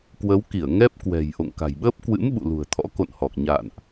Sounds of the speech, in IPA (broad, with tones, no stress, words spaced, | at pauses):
kwə˨˦wki˧˩ə̯ ŋɛ˦˥p̚ kwɛ̤˨˩jʔo̰˧˨ŋka̤˨˩jɓəː˦˥p̚ kwɨ̰˧˥m ɓṵ˧˨lṳ˨˩ə̯ t̪ʰɔ̰˧˥ko̰˧˨nhɔ˨˩k̚ ɲa̰˧˨nʔ